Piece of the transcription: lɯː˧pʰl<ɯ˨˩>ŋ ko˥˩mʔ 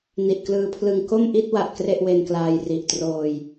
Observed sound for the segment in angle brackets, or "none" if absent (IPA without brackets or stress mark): ɯ˧